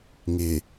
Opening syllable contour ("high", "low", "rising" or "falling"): low